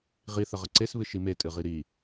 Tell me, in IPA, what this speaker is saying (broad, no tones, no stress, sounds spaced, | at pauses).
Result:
ʁ i θ ə ʁ ə ǀ e s β ɨ ʃ i m e tʼ ɨ ʁ i ɾ i